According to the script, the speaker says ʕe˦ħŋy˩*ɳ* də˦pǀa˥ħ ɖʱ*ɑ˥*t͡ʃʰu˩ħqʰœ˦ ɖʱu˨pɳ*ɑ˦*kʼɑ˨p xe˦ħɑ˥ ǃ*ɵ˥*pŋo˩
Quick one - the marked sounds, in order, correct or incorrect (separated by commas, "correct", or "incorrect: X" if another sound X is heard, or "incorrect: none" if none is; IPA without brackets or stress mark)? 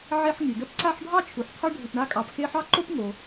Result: incorrect: none, correct, incorrect: a˦, incorrect: o˥